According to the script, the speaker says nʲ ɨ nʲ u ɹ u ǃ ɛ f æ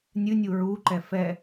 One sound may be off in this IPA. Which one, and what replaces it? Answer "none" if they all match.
æ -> ɛ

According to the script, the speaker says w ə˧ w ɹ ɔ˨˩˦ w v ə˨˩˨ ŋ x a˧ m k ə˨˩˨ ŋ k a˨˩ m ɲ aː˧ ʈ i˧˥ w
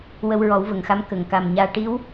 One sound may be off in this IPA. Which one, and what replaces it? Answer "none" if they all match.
none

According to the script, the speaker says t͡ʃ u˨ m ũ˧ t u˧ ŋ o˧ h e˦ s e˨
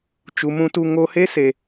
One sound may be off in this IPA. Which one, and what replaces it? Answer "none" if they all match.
none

